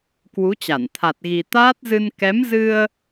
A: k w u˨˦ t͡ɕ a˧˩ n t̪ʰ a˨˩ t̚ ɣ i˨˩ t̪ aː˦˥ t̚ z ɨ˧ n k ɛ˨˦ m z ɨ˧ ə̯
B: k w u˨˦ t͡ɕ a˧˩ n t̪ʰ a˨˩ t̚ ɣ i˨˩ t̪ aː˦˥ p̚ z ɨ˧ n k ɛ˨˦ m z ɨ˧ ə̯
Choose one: A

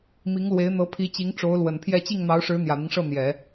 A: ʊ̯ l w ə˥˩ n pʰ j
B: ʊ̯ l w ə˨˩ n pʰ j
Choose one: B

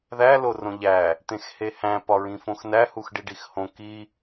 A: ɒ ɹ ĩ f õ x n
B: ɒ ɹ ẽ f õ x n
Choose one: A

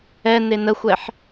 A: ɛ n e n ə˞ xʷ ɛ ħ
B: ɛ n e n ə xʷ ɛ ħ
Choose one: B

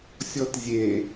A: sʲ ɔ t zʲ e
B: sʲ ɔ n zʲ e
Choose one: A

